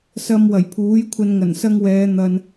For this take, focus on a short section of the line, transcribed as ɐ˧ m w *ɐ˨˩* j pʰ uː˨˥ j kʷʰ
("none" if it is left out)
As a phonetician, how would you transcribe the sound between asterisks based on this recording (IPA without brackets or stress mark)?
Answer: ɐ˨˩